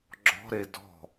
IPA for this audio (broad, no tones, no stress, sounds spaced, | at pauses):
ɡ͡ǁ ɔ̤ ɾ e d ɔ̤